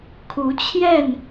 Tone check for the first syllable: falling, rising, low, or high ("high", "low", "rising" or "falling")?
rising